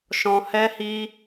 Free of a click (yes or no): yes